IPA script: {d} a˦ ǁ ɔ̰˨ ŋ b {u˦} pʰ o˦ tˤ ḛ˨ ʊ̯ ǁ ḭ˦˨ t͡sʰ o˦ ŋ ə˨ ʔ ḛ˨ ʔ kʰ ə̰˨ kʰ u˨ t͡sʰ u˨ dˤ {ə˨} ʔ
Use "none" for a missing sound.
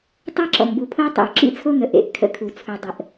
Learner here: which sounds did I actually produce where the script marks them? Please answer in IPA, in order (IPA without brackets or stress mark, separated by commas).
tˤ, u˨, ə˨